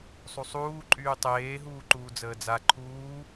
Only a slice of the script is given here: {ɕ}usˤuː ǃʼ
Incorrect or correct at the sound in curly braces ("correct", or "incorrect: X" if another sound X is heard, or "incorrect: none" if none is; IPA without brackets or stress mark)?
incorrect: sˤ